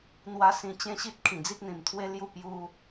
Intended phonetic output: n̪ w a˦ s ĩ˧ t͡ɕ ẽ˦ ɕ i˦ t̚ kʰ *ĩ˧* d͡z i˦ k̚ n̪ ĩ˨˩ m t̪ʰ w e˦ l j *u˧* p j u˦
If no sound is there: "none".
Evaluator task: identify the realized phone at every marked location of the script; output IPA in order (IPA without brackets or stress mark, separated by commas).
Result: ĩ˨˩, u˥˧